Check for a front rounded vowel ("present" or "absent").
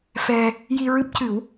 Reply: absent